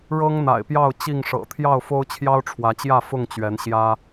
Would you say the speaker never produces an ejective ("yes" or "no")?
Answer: yes